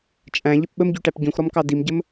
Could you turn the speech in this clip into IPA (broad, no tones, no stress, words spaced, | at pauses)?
t͡ʃʼæ̃ʎəp ɓəmɟyʈæp ɟũxɾɔmkɑ dimɟəm